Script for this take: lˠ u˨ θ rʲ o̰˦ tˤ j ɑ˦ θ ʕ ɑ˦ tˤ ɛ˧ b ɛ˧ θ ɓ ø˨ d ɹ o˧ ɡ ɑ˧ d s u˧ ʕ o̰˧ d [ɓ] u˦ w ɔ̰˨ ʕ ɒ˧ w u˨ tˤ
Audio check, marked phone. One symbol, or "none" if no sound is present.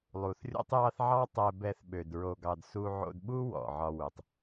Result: ɓ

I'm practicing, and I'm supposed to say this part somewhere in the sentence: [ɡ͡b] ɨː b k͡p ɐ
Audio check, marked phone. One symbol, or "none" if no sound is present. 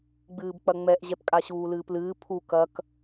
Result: ɡ͡b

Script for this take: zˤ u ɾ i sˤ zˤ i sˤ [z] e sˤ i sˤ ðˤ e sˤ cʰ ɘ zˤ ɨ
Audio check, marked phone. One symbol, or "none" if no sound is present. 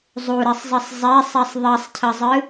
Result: zˤ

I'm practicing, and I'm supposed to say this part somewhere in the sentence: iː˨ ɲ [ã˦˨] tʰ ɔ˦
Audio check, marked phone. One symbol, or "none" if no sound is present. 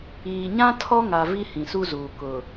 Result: ã˦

